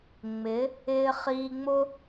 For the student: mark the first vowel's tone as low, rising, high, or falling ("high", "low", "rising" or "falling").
rising